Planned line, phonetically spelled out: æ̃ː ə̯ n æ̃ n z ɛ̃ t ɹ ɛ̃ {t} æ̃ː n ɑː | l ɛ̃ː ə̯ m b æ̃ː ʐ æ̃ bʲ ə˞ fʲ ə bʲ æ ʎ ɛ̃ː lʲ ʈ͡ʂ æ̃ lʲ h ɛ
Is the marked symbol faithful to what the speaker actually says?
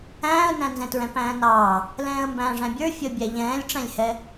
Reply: no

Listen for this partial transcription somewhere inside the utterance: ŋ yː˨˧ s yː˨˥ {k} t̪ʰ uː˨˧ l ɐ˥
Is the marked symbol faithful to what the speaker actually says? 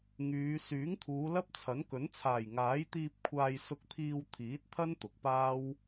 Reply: no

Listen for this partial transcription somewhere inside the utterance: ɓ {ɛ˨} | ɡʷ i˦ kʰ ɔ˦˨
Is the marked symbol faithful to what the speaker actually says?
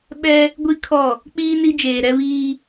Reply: no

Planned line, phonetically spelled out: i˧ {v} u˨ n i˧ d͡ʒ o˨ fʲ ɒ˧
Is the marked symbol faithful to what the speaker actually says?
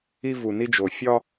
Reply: yes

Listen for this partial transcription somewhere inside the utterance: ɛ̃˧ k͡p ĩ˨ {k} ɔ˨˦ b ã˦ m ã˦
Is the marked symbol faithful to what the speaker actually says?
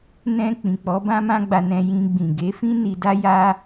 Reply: no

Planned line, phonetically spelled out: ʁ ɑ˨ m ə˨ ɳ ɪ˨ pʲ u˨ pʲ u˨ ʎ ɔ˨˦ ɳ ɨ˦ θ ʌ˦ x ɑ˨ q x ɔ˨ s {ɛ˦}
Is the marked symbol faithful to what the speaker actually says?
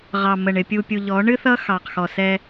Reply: yes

